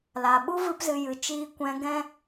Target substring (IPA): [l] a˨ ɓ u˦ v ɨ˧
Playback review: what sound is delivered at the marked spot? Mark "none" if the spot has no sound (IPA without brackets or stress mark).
l